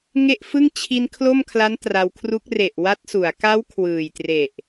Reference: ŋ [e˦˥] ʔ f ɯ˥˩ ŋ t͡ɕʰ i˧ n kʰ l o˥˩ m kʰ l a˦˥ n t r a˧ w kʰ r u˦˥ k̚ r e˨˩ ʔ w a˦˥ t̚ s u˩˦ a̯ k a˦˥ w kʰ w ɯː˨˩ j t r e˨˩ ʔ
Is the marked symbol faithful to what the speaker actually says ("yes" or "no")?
no